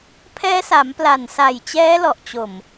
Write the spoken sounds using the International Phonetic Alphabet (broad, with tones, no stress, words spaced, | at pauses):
pʰɛː˦˥sa˩˦mpla˨˩nsa˨˩j t͡ɕɛː˦˥lɔ˨˩ʔt͡ɕo˨˩m